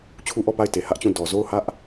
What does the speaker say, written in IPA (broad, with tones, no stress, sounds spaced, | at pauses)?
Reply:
t͡ɕʰ u˦ ʔ ɔ˦˨ p a˦˨ ɪ̯ t e˨ h ä˦ ʔ t͡ɕ ũ˦˨ d ɔ˨ z o˦˨ ʊ̯ h ä˦ ʔ